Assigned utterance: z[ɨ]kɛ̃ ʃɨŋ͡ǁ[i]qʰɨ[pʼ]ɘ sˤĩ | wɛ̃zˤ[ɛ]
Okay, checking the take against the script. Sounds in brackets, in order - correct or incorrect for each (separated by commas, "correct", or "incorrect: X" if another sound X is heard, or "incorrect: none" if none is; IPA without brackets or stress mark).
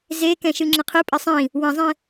incorrect: e, incorrect: ɨ, correct, incorrect: ɛ̃